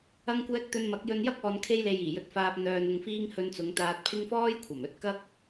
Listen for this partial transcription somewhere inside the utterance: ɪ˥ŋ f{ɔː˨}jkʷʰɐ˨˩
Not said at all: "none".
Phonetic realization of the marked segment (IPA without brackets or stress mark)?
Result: ɔː˥